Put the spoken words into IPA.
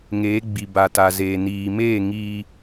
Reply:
ŋeː˨˦ ɡ͡bi˨ba˨ta˨zeː˨ niː˨ meː˦˨ ŋiː˦

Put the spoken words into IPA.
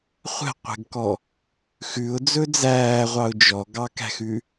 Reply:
χʷɛ̤qʷɛ̤ɡkɔ | xʉʊ̯d͡zɵ d͡zæːʁʷɑʊ̯ d͡ʒɔɡɑkæ̤xʉ

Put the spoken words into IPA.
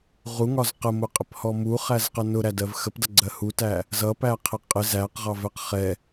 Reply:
ʁuŋɒz qəmʊqʼɪphɔ muχæzqə nʊɾædɜv xəpdʌɡ͡ǀɜ hutæ | zʌpæqʰɪ qʼɪz æqʁɑvɛq χɛ

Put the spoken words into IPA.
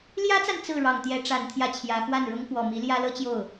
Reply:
ljä˥t͡sa˨n t͡sɹ̩˥˩ɻɑ˨˩ŋ t̪jɛ˧˥ ʈ͡ʂa˨˩nt̪ʰjä˥t͡ɕʰjä˧˥ xwa˥˩nɻʊ˥ŋkwɔ˨˩ mi˧˥ljä˥lɤ˥t͡ɕjo˥˩ʊ̯

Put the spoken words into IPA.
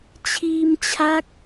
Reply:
t͡ɕʰiː˧mt͡ɕʰa˦˥k̚

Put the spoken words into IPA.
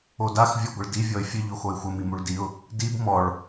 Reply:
odax vʲɔɡʷəɭdi vʲɔɪ̯fʲə ʎoxoɪ̯xʷə mimuɭdiʊ̯ | dib mɔɭ

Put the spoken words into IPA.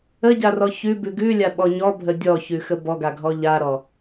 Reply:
əɟarɔ çʉbʉ ɡʉlʲaɓɔ ɲɔbʱə dʲɔçʉxə bɔɡaɡʱɔ ʎaɾɔ

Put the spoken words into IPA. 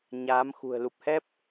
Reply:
ɲaː˨˦mxṳ˨˩ə̯ lu˨˩p̚hɛ˦˥p̚

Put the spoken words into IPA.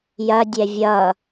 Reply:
jɐdʲɛ vʲʌ

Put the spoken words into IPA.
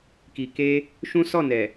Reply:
ki˨ke˧ | ʃũ˦sɔ˦˨ nɛ˨

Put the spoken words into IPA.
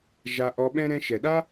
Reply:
ʒa˧ ʔɔ˧ɓɛ̃˦ ɾɛ̃˧ʃɛ˨ɗa˦

